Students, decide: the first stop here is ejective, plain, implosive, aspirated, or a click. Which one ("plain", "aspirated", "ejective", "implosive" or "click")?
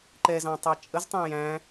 click